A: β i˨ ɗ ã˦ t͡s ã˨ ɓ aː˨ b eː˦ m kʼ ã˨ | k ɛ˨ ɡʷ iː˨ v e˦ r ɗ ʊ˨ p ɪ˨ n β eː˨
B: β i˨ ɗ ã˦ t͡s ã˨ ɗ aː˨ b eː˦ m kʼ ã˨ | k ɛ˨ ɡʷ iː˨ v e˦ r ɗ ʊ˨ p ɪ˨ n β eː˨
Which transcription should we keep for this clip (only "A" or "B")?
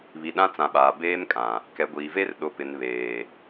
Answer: A